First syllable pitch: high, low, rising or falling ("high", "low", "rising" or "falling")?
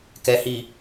low